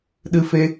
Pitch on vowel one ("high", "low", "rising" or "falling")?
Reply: high